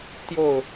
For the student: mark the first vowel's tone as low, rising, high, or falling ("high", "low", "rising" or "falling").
falling